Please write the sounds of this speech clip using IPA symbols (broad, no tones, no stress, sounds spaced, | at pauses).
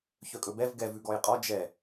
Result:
ç œ kʼ ɵ b ɛ v ɡ ɛ v ʉ ɡ ɔ j qʼ ɔ d͡ʒ ɛ